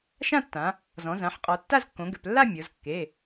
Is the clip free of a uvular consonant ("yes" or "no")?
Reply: no